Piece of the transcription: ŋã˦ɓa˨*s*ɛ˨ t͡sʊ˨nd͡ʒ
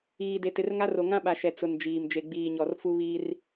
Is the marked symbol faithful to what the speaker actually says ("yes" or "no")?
no